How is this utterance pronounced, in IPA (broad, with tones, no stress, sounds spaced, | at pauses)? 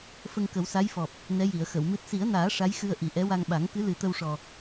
f ə˧ ŋ k ə˨˩˦ w s a˧˥ j f ɔ˨˩ p̚ | n ɛ˧˥ j i˨˩˨ ə̯ x ə˨˩˨ w m ɨ˦˥ t̚ s i˨˩˦ ə̯ n aː˨˩˦ ʂ a˧˥ j x ɨ˧ ə̯ ʔ i˨˩ ʔ ɛ˧˥ w a˧ ŋ ɓ a˨˩˦ ŋ k ɨ˧˥ l ɨ˨˩˦ t̪ ə˧ w ʂ ɔ˨˩